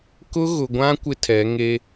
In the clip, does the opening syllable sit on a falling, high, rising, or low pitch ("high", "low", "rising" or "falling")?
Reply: high